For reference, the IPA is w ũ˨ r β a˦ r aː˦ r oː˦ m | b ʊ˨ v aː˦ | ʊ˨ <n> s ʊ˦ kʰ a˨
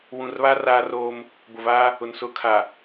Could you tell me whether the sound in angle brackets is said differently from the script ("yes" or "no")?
no